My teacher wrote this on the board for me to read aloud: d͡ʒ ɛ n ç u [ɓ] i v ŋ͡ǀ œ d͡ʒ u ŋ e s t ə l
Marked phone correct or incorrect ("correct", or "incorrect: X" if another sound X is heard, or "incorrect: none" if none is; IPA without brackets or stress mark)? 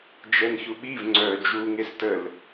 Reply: correct